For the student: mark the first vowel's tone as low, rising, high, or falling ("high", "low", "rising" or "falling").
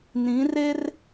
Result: rising